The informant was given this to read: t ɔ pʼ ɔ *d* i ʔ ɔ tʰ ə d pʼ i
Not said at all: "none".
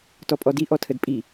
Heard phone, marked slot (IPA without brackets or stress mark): d